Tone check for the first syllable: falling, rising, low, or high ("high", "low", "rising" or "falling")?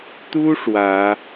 high